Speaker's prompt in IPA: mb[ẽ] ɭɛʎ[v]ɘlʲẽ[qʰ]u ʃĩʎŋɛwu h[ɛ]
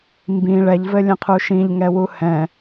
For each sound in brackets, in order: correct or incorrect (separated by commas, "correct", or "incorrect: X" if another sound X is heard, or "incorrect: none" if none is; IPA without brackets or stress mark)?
incorrect: ĩ, correct, correct, incorrect: ɛ̃